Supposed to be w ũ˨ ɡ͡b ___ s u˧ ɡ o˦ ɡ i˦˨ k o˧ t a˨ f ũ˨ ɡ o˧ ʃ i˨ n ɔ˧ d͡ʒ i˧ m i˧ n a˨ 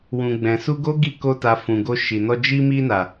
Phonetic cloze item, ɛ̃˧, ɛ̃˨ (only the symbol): ɛ̃˨